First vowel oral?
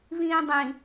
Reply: no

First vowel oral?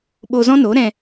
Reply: yes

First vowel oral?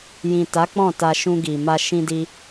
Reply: no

